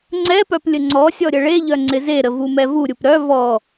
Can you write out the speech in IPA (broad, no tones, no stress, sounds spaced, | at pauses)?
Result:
ŋ͡ǀ ɛ p œ p lʲ ə ŋ͡ǀ ɔ sʲ ɔ ɾʲ ə ɭ e ʎ œ ŋ͡ǀ ɪ z e ɾ ə v u m ɛ v u ɾʲ u p ɾ œ v ɔ